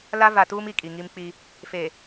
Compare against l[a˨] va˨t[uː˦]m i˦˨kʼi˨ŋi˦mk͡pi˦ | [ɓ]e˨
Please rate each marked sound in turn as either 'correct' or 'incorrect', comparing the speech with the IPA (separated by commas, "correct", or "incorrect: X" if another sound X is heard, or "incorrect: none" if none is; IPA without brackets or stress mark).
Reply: incorrect: a˦, correct, incorrect: f